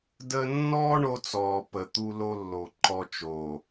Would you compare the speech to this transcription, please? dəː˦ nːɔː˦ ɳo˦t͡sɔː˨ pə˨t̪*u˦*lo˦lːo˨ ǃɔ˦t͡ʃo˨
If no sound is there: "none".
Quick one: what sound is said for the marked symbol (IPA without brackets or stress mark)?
u˦